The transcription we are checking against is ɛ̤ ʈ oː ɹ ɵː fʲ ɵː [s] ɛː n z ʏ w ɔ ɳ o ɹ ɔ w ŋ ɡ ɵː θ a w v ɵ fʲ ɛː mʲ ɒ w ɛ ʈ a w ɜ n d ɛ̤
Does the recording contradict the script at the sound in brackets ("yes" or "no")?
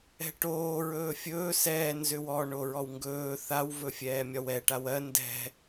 no